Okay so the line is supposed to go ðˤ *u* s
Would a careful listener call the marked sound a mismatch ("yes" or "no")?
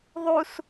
no